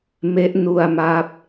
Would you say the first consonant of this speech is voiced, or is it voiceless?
voiced